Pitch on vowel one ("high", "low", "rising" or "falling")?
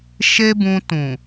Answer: high